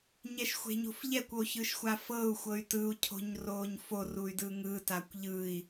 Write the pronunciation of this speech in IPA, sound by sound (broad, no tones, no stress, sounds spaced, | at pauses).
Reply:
ɲ ɛ ʃ xʷ e̤ ɲ o̤ f ʎ ɛ kʷ o ç ɯ ʃ xʷ a f ɤ u̯ xʷ ɤ y̯ t ɯ u̯ cʰ o̤ ɲ r oː ɲ f o r u y̯ d ɯ ŋ ɯ t a kʷ ʎ ɯ i̯